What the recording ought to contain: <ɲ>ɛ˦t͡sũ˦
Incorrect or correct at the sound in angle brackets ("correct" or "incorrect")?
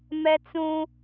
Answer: incorrect